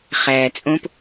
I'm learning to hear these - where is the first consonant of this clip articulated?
uvula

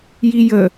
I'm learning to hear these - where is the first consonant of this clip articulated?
palate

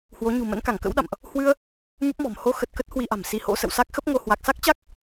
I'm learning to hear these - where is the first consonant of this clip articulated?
throat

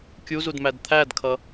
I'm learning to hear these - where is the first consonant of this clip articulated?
velum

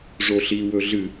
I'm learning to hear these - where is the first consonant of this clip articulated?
retroflex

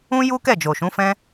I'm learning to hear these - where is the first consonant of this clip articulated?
palate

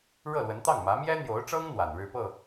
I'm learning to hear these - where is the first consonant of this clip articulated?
retroflex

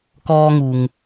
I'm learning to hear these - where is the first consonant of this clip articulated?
velum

